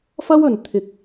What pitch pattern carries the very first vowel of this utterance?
high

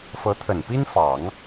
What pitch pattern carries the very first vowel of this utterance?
rising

